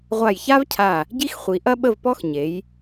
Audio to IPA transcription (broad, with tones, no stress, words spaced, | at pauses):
ʁʷa˧˩jça˥vcʰa˧˩ | ɟi˥xχʷi˩˧ ʔɐ˥ɓə˥˧vpɔ˥x ɲe˩˧j